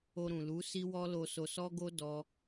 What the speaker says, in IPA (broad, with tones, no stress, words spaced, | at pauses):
o˧ɾũ˨lu˨˦ si˦wɔ˦ lo˧so˧sɔ˦ ɡo˦ dɔ˦